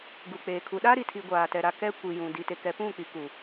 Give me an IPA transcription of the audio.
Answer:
ɡ u˨ k͡p eː˨ kʰ u˨ ɗ a˦ ɾ i˨ tʰ i˨ ɡʷ aː˨ t ɛ˨ ɾ a˨ k ɛ˦ kʷ i˨ j ũ˨ d i˨ t e˨ k ɛ˨ p ũ˦˨ k͡p i˨ k u˨

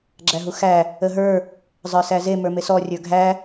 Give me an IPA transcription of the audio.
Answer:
ɡ͡ǁ æ ɦ u x æ | ə ɦ ə˞ | zˤ ə˞ s æ z e m ə˞ m e s ɔ rʲ ə˞ ɡʱ æ

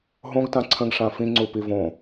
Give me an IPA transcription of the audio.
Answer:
ɦ õ ɡ t ã ǀʰ ə̃ ɡ ʂ ã f ĩ ŋ͡ǀ u p i v õ

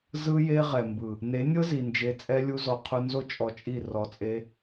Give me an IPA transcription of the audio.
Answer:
z ɯ˦ j e˦ ʁ ɛ˨ m b ɯ˨ | n e˨˦ nʲ ɤ˦ z i˨ n d͡ʒ e˧ t͡sʼ ɛ˦ lʲ u˦ z ɔ˧ qʰ u˧ n z o˦ t͡ʃʼ ɔ˧ t͡ʃʼ i˦˨ r ɔ˧ t͡sʼ e˦

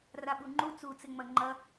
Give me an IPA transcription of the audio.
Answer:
r a ɓ u ŋ͡ǃ u t͡s u t͡s ɪ ŋ͡m ɐ ŋ͡ǃ ɐ

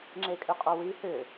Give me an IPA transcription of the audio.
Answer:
ŋ͡ǁ e kʼ ʏ qʼ o w i h ʏ

